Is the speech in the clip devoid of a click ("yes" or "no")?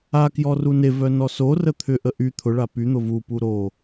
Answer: yes